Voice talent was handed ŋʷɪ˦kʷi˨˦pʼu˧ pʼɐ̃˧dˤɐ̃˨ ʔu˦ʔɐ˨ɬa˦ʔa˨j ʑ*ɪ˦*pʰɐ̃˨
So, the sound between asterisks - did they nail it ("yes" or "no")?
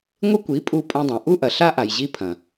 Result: no